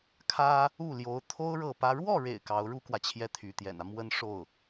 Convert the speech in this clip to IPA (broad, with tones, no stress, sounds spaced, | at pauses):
kʰ ä˥ | u˥˩ l j o˧˥ ʊ̯ t̪ʰ o˥ ʊ̯ ɻ ɤ˥˩ p ä˥ ɻ w ɔ˥˩ ɻ ḛ˨˩ ɪ̯ k ɑ˧˥ ʊ̯ ɻ u˥ k w ä˨ t͡ɕʰ j ɛ˥˩ t̪ʰ y˧˥ t̪ j ɛ̰˨˩ n ä˦ m w ə˥ n ʂ o˥˩ ʊ̯